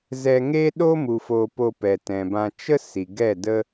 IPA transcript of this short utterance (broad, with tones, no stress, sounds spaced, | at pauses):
z ɛ˧ ŋ eː˦ ɗ o˦ m u˨ f o˧ p o˧ p ɛ˨ t ɛ̃˨ b ã˧ t͡ʃ ə˧ s i˨ ɡ ɛ˦˨ d ə˦